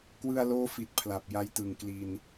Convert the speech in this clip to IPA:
kwɯ˧a̯loː˦˥ fi˨˩t̚pʰla˨˩p̚ ja˧jtɯ˨˩ŋ kli˧n

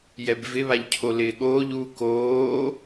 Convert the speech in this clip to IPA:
jɛbvɪβaʎ cʰolɪːɠoːʎ u koː

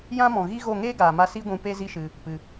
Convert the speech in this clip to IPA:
jã˦mɔ̃˨ ɣi˦ɣo˦˨ ŋeː˦ɡaː˨ma˧ si˦ɡʷũ˧ pe˦zi˦ʃɨ˧ | pɨ˧

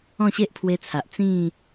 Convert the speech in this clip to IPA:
ɔ̃˥˧ɕe˦ʔpʰwe˧t͡sʰa˨ʔ t͡sĩ˥˧

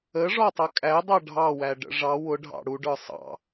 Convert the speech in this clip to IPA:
əʐɔtˤʌ kʼædˤɑ ɖʱɑwæɖə̰ ʐɑ wʊɖʱɑ̰ ɽuɖə˞ sˤɑ̰

